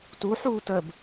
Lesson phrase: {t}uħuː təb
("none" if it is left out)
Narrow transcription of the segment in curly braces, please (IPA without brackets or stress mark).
t